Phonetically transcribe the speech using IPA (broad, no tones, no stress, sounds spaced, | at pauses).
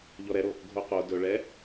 ʎ ɔ ɾ ɛ ɾ o | ɡʱ o q o d ɵ ɭ ɛ